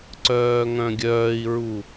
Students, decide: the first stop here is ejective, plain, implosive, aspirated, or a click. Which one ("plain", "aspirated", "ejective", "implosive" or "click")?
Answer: click